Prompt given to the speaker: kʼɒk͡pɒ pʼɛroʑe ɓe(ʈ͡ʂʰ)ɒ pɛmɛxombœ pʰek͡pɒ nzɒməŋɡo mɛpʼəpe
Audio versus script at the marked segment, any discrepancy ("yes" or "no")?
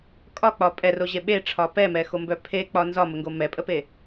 no